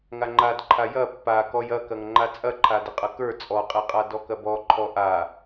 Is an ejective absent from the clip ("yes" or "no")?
no